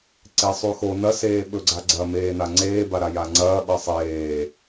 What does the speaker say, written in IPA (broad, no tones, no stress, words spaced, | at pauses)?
ǀesˤʉxo nɐseː ɓɵɡ͡ǀaɡ͡ǀɐ meːnaŋ͡ǀeːba ɾajaŋ͡ǀɐː ɓɐsˤeː